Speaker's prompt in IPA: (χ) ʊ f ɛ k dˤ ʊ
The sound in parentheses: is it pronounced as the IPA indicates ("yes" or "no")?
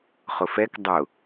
yes